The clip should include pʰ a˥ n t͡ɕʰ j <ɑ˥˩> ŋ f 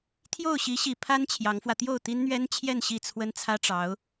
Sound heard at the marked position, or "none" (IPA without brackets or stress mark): ɑ˧˥